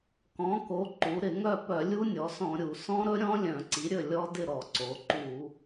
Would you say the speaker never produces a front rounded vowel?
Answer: no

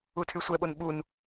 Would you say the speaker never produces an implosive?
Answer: no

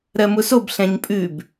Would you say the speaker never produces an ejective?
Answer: no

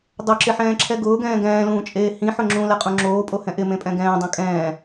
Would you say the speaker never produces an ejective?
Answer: no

